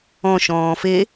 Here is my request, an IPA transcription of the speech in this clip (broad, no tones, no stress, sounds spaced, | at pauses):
ɔ̃ ʃ ɔ̃ː f e